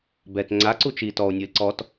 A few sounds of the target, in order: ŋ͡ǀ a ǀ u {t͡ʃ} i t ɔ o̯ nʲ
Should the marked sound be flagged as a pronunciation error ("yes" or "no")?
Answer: no